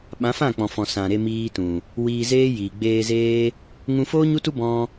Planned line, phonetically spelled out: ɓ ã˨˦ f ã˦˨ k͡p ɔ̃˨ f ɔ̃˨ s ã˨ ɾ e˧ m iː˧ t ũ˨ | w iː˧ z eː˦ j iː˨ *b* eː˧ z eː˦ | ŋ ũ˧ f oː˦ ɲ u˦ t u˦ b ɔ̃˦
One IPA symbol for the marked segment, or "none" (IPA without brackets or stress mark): ɡ͡b